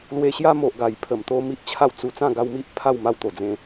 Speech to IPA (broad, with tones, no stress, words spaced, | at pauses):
lwe˧ɕja˦ mo˨ʔ ɡa˨˩jpʰə˨˩mt̪o˧ mi˦ʔt͡ɕʰa˥˧wt͡su˧ t͡sã˥˧ɡa˧wmi˦ʔ pʰa˥˧wma˧wt̪o˨˩ d͡zẽ˧